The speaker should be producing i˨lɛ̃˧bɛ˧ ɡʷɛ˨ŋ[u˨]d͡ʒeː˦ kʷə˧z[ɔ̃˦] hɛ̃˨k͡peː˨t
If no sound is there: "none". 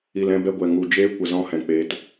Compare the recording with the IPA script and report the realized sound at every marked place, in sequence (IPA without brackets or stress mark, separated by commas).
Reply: u˨, ɔ̃˦